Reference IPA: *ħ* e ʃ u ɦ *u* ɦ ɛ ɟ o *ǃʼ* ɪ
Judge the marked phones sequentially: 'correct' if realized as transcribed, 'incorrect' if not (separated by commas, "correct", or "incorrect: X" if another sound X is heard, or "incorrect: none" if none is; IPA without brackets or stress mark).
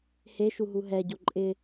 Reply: incorrect: h, correct, correct